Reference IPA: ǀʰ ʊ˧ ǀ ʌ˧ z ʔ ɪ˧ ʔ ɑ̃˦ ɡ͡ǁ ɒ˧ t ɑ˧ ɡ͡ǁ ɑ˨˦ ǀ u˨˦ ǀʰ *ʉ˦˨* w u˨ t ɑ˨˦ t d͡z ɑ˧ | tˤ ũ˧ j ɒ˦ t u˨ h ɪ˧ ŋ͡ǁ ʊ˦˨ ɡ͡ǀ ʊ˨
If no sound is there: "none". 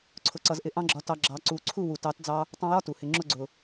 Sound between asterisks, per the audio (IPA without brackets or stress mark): u˦˨